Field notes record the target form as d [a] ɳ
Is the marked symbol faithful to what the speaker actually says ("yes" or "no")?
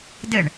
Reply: no